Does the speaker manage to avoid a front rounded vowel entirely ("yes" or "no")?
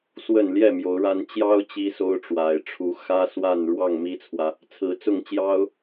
yes